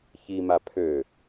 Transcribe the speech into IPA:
ç i m a pʰ ø

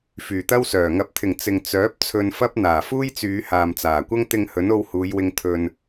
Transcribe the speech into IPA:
f yː˨ t̪ ɐ˥ w s œː˨˩ ŋ ɐ˨˥ p̚ t̪ʰ ɪ˨˩ ŋ t͡s ɪ˨ ŋ t͡s œː˨˥ p̚ t͡sʰ ɵ˧ n f ɐ˥ p̚ n̪ aː˨˩ f uː˥ j t͡s yː˨˧ h aː˨ m t͡s aː˨˩ kʷ ɐ˥ ŋ t̪ ɪ˧ ŋ h ɵ˨˥ n o˧ w h uː˨˧ j w ɪ˧ ŋ t̪ʰ ɵ˧ n

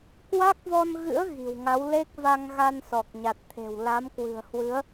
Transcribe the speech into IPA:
k w a˦˥ k̚ v ɔ˧ n ɣ ɨ̰˧˥ ə̯ ɣ i̤˨˩ w ŋ a˨˦ w l e˦˥ k̚ v a˧ ŋ ɣ a˧ n s ɔ˨˩ k̚ ɲ a˨˩ t̚ t̪ʰ e̤˨˩ w l a˨˦ m k w ɨ̤˨˩ ə̯ h w ɨ˨˦ ə̯

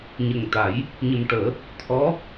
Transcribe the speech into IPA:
ɲ ə˨˩ ŋ t̪ a˨˩˦ j | ɲ ə˨˩ m ʈ əː˨˩˦ | t̪ʰ ɔ˧˥

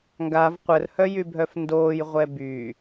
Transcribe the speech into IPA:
ŋ ɡ a v qʷ ə r h œ j y bʱ œ f n d oː j ʁʷ ɛ b y

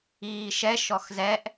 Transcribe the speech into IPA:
iː ʃ ɛ ʃ ɔ x z ɛ ʔ

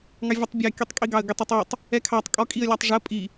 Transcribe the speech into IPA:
ŋ ɑ vʲ ɛ tˤ bʲ ɑ kʲ u tˤ kʼ i ɡ ɑ ə̯ ɡ ɪ tˤ ɛ tˤ w u tˤ | ɛ kʰ ɑ tˤ kʼ ɔ kʼ i ə̯ lʲ ɑ tˤ ʐ ɜ pʼ i

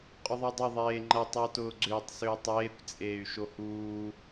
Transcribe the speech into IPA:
qʼ ʊ ðˤ e dˤ ʏ ðˤ eː ŋ͡ǃ ɐ tˤ y u̯ t ʊː ɡ͡ǀ ʏː tˤ s ʏː tˤ eː kʷ t͡sʼ eː y̯ ʃ o h uː

